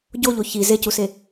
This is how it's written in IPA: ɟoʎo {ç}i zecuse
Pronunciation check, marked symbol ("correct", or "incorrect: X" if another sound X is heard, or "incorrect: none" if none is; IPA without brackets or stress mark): correct